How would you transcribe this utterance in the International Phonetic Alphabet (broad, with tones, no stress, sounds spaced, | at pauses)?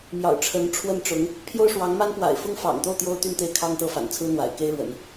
m j ɑ̰˨˩ ʊ̯ ʈ͡ʂʰ ə˧˥ n ʈ͡ʂʰ w ə˥˩ n ʈ͡ʂ ʊ˧˥ ŋ | pʰ j o˥ ʊ̯ ʂ w ɑ˧˥ ŋ m a˥ n p w a̰˨˩ ɪ̯ f ʊ˥ ŋ f ɑ̰˨˩ ŋ t̪ o˥˩ ʊ̯ t̪ j o˥ ʊ̯ t̪ y˥˧ n t̪ e˥˩ ɪ̯ kʰ ɑ˥ ŋ t̪ ɤ˥˩ f a̰˨˩ n t͡sʰ ɹ̩˥ n̪ w a̰˨˩ ɪ̯ k e˥ ɪ̯ ɻ w ə̰˨˩˦ n